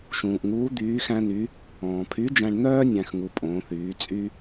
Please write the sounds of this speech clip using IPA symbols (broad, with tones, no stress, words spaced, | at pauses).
ʃũː˩ʔŋuː˧˥ d̪yː˧˥xæ̃˥ny˧˥ | ɔ̃ː˩pʰy˧˥d͡ʒæ̃˧ɳn̪œː˥ nʲæ̃˥xŋu˧ pʼõː˩˧θyː˩˧t͡sʼy˥